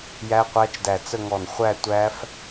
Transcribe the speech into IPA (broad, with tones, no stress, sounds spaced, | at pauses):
j æ˦˥ qʷ æ˦˥ t͡ʃ d æ˧˩ t͡s ə˥˧ ŋ ɔ˧˩ n χʷ æ˥˧ tʷ æ˦˥ f